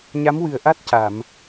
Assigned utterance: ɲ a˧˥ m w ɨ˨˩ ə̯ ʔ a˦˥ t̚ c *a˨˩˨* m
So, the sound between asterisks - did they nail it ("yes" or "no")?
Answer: yes